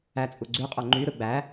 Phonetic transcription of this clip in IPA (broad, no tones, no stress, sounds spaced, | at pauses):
æ t͡sʼ u ɡ͡ǀ y qʼ o ŋ͡ǃ y ɾ ɯ ɡ͡b æ